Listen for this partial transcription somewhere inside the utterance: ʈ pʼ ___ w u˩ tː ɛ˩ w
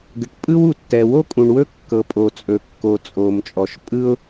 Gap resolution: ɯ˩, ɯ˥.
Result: ɯ˥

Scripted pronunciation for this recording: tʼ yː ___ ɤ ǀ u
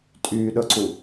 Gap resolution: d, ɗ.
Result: ɗ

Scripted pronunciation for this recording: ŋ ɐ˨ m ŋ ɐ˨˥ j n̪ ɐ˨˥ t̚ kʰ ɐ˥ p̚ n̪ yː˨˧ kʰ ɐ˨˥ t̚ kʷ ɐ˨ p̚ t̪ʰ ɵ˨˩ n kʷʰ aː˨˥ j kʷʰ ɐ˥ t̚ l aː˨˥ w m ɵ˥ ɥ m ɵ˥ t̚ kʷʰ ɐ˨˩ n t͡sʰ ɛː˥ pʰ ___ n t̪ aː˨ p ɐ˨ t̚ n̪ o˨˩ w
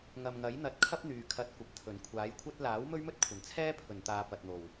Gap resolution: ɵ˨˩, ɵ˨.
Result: ɵ˨˩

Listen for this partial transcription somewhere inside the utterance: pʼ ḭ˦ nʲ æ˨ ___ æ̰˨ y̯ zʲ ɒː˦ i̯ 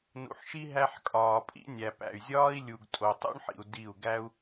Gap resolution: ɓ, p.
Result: p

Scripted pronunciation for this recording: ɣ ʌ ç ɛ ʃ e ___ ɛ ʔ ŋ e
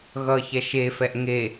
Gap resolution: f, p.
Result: f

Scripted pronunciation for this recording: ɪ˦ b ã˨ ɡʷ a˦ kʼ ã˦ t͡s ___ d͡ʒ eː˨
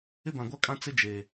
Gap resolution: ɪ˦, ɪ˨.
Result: ɪ˦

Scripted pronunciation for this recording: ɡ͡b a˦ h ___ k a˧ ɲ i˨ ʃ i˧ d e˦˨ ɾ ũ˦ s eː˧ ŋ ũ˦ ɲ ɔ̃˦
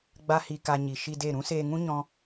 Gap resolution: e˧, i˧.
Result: i˧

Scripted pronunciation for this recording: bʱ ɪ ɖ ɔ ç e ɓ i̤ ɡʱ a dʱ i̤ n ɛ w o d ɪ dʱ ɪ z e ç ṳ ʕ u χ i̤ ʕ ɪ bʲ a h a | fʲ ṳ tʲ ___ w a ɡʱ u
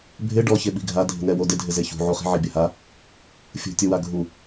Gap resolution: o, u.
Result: o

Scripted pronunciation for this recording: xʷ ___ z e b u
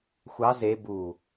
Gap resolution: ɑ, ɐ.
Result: ɑ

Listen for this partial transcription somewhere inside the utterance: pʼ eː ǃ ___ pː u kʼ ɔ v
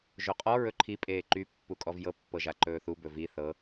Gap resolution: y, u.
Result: y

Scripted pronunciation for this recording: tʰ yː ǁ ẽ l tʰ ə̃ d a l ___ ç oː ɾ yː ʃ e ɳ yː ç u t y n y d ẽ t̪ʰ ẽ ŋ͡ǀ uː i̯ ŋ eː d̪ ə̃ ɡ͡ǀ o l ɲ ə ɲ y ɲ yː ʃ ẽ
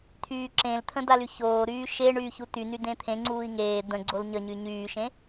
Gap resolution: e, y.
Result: y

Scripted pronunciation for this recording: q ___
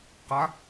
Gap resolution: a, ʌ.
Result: a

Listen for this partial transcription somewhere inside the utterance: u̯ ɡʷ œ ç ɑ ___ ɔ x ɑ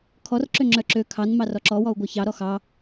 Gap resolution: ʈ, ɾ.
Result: ɾ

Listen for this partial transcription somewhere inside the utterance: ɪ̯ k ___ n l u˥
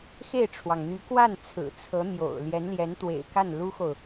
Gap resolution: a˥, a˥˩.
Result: a˥˩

